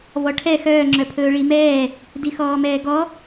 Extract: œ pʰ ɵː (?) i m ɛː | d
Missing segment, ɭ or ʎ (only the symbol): ɭ